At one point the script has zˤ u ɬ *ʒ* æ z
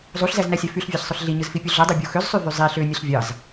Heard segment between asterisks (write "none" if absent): z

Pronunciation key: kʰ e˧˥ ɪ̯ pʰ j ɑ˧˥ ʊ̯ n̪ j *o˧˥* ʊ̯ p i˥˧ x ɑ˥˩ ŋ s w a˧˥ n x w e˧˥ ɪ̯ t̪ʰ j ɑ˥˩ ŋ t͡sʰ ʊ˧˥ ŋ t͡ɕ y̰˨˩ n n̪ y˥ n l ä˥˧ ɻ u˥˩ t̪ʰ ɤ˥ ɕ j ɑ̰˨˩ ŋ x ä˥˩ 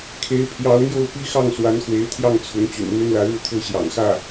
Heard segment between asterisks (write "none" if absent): o˥˧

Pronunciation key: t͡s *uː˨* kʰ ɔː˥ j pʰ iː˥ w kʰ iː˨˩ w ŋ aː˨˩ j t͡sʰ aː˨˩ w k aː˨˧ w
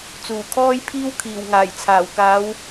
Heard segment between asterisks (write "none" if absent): uː˨˩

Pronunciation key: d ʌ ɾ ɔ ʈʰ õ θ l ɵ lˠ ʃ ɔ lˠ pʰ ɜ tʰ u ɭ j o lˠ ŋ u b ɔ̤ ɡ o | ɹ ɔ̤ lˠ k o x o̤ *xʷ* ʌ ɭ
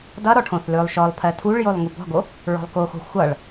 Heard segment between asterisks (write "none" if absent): xʷ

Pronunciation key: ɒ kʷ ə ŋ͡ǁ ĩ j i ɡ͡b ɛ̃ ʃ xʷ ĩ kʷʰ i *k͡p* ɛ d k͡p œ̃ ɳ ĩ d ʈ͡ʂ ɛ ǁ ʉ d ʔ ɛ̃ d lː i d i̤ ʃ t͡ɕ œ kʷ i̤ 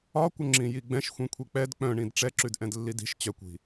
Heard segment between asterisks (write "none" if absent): k͡p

